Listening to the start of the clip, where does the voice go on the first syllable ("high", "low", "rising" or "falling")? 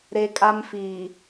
high